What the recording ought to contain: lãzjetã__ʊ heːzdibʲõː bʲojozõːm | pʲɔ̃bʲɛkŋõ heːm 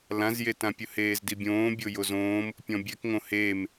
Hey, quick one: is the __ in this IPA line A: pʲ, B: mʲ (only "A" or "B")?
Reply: A